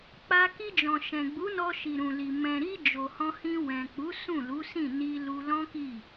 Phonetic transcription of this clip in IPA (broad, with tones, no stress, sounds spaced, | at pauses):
k͡p a˧ k i˧ d͡ʒ ɔ̃˨ ʃ ɛ̃˨ ɡ͡b u˨˦ n ɔ˧ ʃ i˨ ɾ ũ˨ l i˨ m ɛ̃˨ ɾ i˧ d͡ʒ o˨ h ɔ̃˧ h ĩ˧ w ɛ̃˨ k͡p u˨˦ s ũ˦˨ l u˨˦ s ĩ˦˨ n i˧ l u˧ l ɔ̃˦ k i˦˨